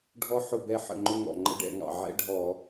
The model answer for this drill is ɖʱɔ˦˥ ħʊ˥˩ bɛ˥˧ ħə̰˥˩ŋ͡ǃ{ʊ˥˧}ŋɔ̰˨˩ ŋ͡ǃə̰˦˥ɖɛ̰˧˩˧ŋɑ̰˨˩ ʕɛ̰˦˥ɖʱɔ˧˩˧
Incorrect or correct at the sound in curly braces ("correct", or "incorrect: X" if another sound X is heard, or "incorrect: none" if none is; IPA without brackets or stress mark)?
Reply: correct